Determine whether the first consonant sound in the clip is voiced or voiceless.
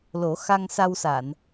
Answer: voiced